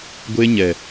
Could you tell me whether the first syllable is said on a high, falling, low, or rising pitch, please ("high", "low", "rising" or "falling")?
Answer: high